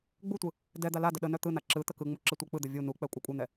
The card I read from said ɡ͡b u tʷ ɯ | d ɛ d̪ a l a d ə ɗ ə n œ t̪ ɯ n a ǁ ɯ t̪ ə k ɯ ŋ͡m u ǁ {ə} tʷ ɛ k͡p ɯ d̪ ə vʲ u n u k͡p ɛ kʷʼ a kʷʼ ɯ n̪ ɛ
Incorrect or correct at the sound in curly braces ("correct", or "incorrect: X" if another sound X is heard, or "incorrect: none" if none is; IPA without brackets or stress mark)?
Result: correct